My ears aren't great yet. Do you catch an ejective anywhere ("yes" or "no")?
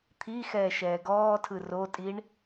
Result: yes